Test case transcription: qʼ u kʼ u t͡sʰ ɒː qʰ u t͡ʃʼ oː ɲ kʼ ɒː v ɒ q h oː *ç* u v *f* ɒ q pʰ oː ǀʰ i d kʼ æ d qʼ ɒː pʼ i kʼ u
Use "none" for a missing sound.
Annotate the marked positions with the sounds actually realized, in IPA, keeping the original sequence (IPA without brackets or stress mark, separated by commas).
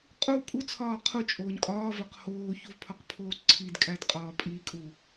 ç, pʰ